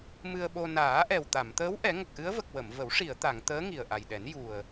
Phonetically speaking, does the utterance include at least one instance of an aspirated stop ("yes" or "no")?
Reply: no